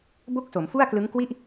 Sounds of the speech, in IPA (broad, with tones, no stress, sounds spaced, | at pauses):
b o˥˩ k̚ s o˩˦ m f u˥˩ a̯ k l ɯ˦˥ ŋ k w i˥˩ ʔ